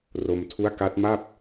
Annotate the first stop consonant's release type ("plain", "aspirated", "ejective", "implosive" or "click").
aspirated